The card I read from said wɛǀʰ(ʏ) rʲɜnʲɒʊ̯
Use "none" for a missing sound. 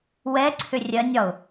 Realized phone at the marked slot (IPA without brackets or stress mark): ʏ